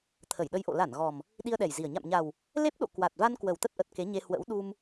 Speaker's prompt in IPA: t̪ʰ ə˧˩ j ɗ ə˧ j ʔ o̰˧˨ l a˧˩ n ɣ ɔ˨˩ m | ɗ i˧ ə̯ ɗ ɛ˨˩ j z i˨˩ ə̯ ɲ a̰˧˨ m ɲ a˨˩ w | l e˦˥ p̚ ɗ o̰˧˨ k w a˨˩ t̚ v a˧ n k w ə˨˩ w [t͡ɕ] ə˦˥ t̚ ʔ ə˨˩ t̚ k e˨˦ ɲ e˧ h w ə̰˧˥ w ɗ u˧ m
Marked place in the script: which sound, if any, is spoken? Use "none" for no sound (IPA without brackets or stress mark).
t̪